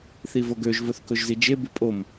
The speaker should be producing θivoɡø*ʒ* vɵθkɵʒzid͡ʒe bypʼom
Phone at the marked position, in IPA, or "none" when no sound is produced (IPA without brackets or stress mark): ʒ